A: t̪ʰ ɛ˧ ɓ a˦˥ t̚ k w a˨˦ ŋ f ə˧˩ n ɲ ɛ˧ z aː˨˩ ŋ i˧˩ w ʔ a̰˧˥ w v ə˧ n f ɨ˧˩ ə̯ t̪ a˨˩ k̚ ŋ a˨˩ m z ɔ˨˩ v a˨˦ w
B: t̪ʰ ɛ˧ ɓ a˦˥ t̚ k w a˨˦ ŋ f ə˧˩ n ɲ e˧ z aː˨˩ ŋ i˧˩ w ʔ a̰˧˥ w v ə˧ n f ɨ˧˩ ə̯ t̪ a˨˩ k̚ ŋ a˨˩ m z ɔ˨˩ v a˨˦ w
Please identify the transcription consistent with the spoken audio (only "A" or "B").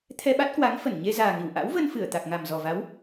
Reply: B